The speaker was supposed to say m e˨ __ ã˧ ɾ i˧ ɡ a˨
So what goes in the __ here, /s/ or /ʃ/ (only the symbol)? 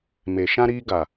ʃ